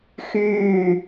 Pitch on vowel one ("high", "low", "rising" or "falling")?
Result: falling